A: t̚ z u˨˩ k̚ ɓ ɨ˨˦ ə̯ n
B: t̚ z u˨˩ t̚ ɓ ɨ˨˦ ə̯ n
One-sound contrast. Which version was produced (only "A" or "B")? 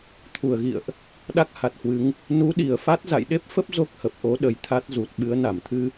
B